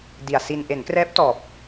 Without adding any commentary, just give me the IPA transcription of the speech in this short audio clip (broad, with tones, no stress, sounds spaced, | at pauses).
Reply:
d i˨˩ a̯ s i˧ n ʔ e˩˦ n k r ɛː˦˥ p̚ t ɔː˨˩ p̚